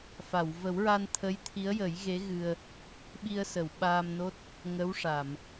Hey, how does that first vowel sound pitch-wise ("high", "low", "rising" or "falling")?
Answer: low